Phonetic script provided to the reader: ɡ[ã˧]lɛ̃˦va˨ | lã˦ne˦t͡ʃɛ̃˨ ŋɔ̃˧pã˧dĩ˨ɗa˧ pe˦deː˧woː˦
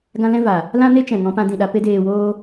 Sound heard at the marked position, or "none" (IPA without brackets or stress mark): ã˦